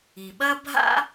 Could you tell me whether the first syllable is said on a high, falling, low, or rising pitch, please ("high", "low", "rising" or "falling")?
low